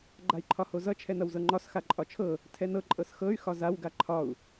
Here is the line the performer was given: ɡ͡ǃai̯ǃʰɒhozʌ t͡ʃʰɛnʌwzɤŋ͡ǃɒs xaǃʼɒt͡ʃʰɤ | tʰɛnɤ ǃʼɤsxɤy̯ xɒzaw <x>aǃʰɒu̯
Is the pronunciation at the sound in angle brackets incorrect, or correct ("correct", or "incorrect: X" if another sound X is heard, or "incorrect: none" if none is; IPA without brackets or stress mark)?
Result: incorrect: ɡ